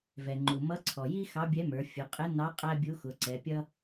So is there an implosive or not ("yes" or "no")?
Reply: no